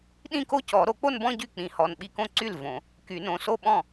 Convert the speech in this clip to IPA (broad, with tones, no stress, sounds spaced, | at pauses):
ɗ ĩ˥˧ k o˥˧ c ɔ˨˩˦ ɾ o˨˩˦ k͡p o˥˧ n b ɔ̃˥˧ ɟ y˥˩ k͡p ĩ˨˩˦ h ɔ˩˧˩ n ɓ i˥˩ k õ˥˧ ǀ y˥˩ l v õ˨˩˦ | k y˨˩˦ n õ˩˧˩ s o˥˩ ɓ ɔ̃˥˩